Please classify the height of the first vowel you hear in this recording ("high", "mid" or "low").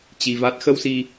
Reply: high